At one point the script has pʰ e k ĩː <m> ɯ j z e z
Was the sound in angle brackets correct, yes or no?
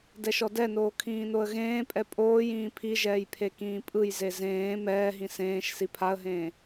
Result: no